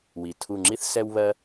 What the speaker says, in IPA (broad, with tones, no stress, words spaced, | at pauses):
wi˨ tʰu˦˨ŋ͡ǁi˥θ sɛ˥wβɜ˥